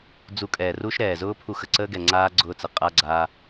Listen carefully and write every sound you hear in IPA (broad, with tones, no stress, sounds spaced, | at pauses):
d͡z u˧ kʼ ɛː˨ r u˦ ʃ ɾ ɛː˨ z ʊː˦ pʰ u˧ x ə˨ ǀ əː˦ ɡ ɛ˨ ŋ͡ǀ aː˦ ɡ͡ǀ ʊː˧ t͡s ə˨ qʼ a˧ ɡ͡ǀ aː˧